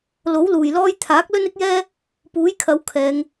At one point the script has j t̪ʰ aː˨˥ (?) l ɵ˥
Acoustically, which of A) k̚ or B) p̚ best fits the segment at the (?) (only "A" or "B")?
A